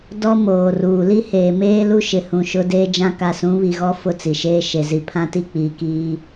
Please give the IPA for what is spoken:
d ɔ˦ m oː˨ r uː˨ l i˦ h eː˨ m eː˦ l u˦ ʃ ɪ˨ h ũ˨ ʃ ʊ˦ d eː˦ d͡ʒ ã˦ k a˨ s ũ˨˦ β i˨ ɣ ɔ˦ f ʊ˦ t͡s i˨ ʃ eː˦ ʃ e˨ z i˨ pʰ ã˦ t i˦ k͡p iː˨ k iː˦

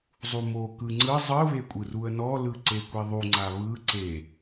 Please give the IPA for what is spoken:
zˤ u m o k ɯ ŋ͡ǀ ɯ zˤ ɯ β e kʷʼ ɯ r u ə̯ n ɔ l ɯ ǀ e kʷ i ðˤ u ŋ͡ǀ a β ɯ ǀ e

